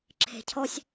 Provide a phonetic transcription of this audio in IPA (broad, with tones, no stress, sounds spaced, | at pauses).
ǁʰ e̤˨ cʰ ɔ˦ sʲ